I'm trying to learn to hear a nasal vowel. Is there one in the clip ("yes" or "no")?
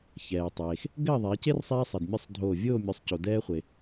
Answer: no